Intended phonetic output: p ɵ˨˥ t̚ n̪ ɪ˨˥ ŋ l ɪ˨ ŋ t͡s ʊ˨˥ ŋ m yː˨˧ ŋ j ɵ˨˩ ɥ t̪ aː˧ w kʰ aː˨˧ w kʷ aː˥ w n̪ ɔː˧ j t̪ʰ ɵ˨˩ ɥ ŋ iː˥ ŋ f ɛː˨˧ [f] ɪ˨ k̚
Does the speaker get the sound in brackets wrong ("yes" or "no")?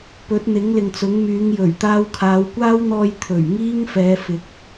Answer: no